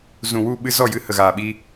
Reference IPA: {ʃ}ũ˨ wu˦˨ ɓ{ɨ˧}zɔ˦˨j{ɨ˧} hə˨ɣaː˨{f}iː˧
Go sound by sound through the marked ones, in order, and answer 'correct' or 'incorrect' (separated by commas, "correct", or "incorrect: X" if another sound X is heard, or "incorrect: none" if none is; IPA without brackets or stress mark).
incorrect: z, correct, correct, incorrect: ɓ